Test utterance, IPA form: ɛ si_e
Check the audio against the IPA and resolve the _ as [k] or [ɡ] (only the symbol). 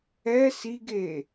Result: ɡ